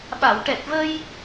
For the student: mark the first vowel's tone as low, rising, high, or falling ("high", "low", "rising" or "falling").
low